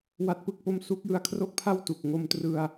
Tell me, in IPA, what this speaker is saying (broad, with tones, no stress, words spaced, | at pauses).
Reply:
wa˦˥t̚pɯ˥˩k̚po˥˩m su˦˥k̚jɯ˨˩a̯kʰro˥˩k̚pʰa˥˩w tu˨˩k̚ŋo˦˥mtrɯ˧a̯